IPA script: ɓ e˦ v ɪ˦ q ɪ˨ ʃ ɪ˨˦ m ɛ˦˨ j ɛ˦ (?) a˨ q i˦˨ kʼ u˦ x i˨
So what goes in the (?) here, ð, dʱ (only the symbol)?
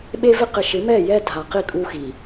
dʱ